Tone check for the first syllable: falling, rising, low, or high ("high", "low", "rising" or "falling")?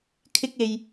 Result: high